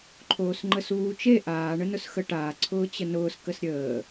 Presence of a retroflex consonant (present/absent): present